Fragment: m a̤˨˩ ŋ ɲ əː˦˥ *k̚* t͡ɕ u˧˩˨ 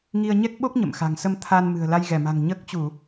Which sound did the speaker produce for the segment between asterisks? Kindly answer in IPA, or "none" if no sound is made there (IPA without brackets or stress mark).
k̚